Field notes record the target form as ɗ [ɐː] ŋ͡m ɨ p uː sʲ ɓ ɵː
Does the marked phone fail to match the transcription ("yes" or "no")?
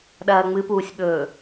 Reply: no